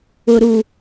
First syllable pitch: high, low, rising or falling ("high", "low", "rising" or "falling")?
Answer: low